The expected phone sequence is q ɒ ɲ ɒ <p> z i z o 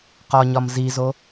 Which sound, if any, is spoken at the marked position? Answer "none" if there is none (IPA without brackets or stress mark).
m